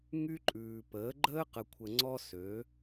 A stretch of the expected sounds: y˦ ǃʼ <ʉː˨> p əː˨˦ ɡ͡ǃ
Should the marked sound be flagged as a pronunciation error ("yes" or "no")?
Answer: no